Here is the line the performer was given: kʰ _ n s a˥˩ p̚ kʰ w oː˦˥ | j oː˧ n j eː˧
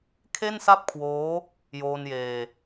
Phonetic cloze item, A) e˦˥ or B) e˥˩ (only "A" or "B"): B